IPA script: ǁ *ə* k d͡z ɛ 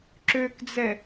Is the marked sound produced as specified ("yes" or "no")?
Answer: no